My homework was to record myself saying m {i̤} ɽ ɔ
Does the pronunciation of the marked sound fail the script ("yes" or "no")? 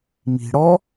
no